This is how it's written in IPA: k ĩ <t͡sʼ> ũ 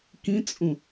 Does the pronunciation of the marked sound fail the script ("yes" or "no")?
no